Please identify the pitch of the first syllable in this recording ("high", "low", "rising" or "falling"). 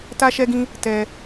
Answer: high